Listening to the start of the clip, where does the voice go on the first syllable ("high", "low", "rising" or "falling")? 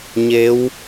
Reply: rising